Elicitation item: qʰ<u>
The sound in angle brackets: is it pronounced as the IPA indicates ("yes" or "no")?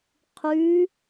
no